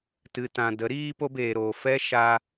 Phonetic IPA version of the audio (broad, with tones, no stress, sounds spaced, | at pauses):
t ɨ˨ t ã˨ d ə˨˦ ɾ iː˦ p o˧ b eː˨ ɾ oː˨ f ɛ˦ ʃ a˦